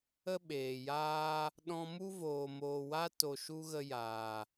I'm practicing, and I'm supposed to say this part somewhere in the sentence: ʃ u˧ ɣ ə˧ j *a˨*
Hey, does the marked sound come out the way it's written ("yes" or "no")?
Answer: no